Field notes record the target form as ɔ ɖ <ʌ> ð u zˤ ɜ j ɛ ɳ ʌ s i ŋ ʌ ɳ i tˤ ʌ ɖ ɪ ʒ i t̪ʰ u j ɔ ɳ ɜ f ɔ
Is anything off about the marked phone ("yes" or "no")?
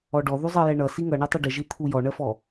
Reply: yes